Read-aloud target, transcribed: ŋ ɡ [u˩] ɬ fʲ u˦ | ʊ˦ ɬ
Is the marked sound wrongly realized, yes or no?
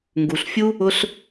no